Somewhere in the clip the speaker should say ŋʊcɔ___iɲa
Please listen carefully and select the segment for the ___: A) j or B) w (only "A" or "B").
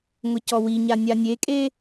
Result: B